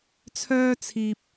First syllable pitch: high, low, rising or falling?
high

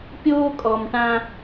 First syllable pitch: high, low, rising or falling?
high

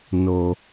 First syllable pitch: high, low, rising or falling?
low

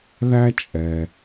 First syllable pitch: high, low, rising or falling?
high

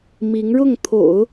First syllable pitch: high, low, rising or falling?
rising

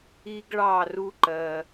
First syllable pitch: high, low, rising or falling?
high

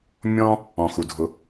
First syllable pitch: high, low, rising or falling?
high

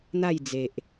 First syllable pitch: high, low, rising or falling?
falling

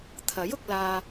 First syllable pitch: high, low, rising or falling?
rising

